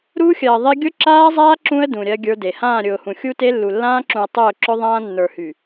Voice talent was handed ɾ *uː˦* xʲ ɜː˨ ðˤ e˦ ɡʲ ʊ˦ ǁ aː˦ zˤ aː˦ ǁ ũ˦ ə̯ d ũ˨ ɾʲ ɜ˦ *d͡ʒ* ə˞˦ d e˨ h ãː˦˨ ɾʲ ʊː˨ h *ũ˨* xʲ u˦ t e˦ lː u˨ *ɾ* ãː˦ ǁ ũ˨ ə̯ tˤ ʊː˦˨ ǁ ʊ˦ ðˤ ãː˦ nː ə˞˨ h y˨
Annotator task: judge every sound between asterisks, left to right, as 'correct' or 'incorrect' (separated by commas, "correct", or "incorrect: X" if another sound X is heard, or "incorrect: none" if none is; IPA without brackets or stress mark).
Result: correct, incorrect: ɡʲ, correct, incorrect: lː